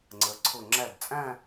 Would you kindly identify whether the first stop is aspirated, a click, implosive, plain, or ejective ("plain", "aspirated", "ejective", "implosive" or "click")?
click